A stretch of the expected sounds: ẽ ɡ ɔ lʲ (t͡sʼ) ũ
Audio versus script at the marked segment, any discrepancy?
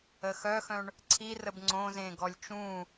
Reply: yes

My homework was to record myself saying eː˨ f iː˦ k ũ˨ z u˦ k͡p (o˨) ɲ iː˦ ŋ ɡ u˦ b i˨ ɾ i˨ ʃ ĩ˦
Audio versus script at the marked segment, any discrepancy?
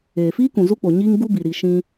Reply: no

